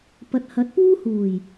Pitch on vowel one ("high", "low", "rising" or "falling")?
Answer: low